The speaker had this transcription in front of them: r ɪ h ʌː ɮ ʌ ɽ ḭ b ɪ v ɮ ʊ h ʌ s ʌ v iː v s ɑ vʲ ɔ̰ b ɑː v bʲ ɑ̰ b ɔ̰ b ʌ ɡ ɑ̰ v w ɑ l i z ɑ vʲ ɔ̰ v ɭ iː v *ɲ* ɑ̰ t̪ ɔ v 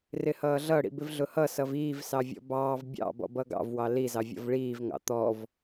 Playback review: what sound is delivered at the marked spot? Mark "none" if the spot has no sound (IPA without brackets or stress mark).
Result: ŋ